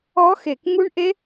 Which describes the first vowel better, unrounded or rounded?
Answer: rounded